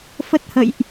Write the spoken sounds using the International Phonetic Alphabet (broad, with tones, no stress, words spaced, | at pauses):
fə˦˥t̚hə̰˧˨jʔ